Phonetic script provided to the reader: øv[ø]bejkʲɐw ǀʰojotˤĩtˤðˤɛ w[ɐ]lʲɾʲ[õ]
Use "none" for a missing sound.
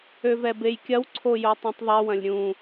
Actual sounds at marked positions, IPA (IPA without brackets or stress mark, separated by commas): ɛ, ɐ̃, ũ